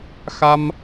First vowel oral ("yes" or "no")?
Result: yes